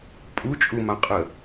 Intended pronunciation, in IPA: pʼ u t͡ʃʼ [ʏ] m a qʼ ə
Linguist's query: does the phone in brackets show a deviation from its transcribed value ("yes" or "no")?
yes